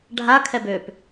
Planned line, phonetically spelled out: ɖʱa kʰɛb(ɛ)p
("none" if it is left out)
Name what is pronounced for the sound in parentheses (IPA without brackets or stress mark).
ø